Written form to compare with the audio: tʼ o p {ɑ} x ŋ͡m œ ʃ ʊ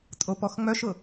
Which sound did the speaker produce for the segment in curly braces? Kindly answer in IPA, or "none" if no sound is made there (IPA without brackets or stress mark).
ɔ